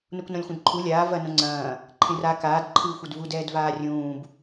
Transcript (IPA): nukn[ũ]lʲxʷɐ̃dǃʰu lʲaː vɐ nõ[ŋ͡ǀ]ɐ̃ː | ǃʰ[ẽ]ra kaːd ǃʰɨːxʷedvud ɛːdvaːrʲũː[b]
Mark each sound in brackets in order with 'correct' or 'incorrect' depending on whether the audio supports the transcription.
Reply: incorrect: õ, correct, correct, correct

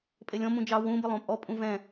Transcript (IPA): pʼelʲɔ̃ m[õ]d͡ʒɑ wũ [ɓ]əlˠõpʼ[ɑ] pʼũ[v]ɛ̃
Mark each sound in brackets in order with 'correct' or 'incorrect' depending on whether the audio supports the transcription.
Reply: incorrect: ũ, incorrect: b, incorrect: ɔ, correct

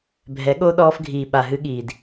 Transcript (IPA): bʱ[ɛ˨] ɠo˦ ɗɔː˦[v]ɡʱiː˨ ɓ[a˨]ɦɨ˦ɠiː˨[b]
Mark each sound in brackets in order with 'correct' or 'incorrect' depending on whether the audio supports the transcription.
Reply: incorrect: ɛ˨˦, incorrect: f, correct, incorrect: d

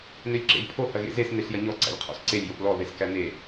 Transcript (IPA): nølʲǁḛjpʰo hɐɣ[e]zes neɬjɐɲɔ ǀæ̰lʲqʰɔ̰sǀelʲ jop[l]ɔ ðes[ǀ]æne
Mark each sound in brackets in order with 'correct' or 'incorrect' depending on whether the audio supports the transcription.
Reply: incorrect: ḛ, correct, incorrect: k

